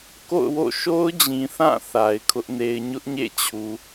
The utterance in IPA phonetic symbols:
k o̰˦˨ ʊ̯ w o̰˦˨ ʃ o˦ ʊ̯ d͡ʑ ĩ˨ θ ã˦˨ θ a˨ ɪ̯ kʰ ʊ˦ ʔ n e˦ ɪ̯ ɲ ʊ˦ ʔ ɲ ḛ˦˨ t͡ɕʰ u˨

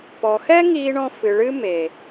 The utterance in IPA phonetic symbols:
p ɔ˨ x ɛ˦ ŋ iː˧ ɳ ɔ̃˧ f ɨ˨ ɭ ɨ˦ m e˨

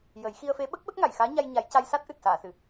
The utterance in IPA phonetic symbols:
j ə˨˩˦ j x i˧ ə̯ f e˧˥ ɓ ə˦˥ k̚ ɓ ə˦˥ k̚ ŋ a˨˩˨ j x aː˧˥ ɲ a˧ j ɲ a˨˩˦ j c a˧ j s a˦˥ t̚ ʔ ɨ˨˩ t̚ s aː˨˩˨ s ɨ˨˩˨

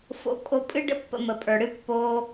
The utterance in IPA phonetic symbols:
f o̰˧ kʼ o˧ pʼ ɨ˥ ɖ ə̰˥ pː ə̰˧ m ə˩ pʼ ə˞˩ ɽ ɨ˥ pː oː˧

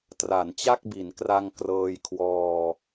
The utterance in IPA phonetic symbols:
t r a˩˦ n t͡ɕ a˥˩ k̚ b i˩˦ n k r a˧ ŋ k r ɤː˧ j kʰ w ɔː˧

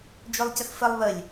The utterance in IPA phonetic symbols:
d͡ʒ o lˠ c ə x f ə lˠ β ə lʲ

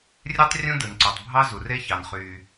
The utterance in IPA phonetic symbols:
rʲ e˥ tˤ rʲ ũ˥ d ɯ˩ n ǀ o˩ tˤ bʱ ɑ˧ z u˩ r e˥ ç ɑ˩ n χ yː˩

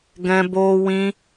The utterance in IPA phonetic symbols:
ɡ ɛ̃˦ b oː˦ w ĩ˦

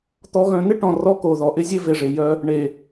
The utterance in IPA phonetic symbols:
t̪ ɔ˨ ɣ œ̃˨ n ɪ˦ ʈ ɔ̃˨ r ɔ˦ k o˨ ð ɔ˨ ʔ ɪ˦ zʲ e˦ v e˨ ʐ e˨ j œ˦ | ɳ e˨

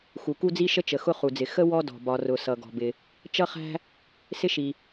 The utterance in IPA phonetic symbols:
x u˩ k u˥ d͡z i˥ ʃ ə˥ t͡ʃ ə˩ x ʊ˥ χ u˩ d͡z ɪ˩ x ə˥ w ɔ˥ d ɔ̤˩ b ɒ˩ r ʊ˩ s ʌ˩ ɡ ɔ̤˩ b ɪ˩ | t͡ʃ ʌ˥ χ æ̤˥ | s ɪ˥ ʃ i˩

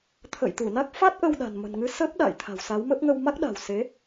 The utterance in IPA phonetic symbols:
t̪ʰ ə̰ː˧˨ j t̪ u˧˩ n a˦˥ k̚ f a˦˥ t̚ ʔ ə˧ w ɗ a̤˨˩ n m ə̤˨˩ n ŋ ɨ˧ s ə˦˥ p̚ ɗ a̰ː˧˨ j t̪ʰ a̤˨˩ w s a˨˦ w m ə˦˥ p̚ ŋ ə˧ w m a˦˥ k̚ ɗ a̤˨˩ w s e˨˦

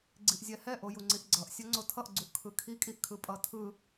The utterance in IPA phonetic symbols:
ɡ͡ǀ i ʔ zʲ ɛ h ɛ ʔ o j u ŋ͡ǀ i ʔ ɡ͡ǀ ʌ ʔ sʲ ʌ ŋ͡ǀ o tʰ ʌ ʔ ɡ͡ǀ u ʔ kʰ ɯ kʰ i kʼ i ʔ kʰ ɯ pʼ ʌ tʰ ɯ

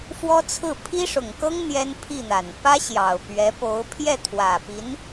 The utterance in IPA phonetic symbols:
f w ɔ˥ t͡sʰ ɹ̩˥˩ pʰ i˥ ʂ ʊ˨˩ ŋ k ɤ˥ ŋ n̪ j ɛ˥ n pʰ i˥˩ n̪ a˨˩ n p ä˥ ɕ j ɑ˨˩ ʊ̯ p ɥ ɛ˧˥ p o˧˥ ʊ̯ pʰ j ɛ˥˩ t̪ʰ w ä˨˩ p i˧˥ n

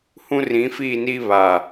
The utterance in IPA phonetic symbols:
h ũ˦ r ĩ˨˦ f iː˦˨ n iː˦ β a˨

